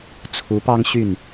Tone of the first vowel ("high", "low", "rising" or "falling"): rising